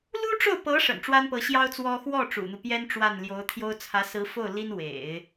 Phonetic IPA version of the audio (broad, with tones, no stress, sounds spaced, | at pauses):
l u˥ ʈ͡ʂ o˥˩ ʊ̯ p ɤ˧˥ ʂ ə̰˨˩ n ʈ͡ʂ w a˥ n p ɤ˧˥ ɕ j ɑ˥ ʊ̯ t͡s w ɔ˥ x w ɔ˥˩ ʈ͡ʂ ṵ˨˩ n̪ u˦ p j ɛ˥ n ʈ͡ʂ w a˥˩ n l j o˧˥ ʊ̯ t̪ʰ j o˥ ʊ̯ t͡sʰ ä˧˥ s ɹ̩˧˥ f o˥˩ ʊ̯ l i˥ n w ḛ˨˩˦ ɪ̯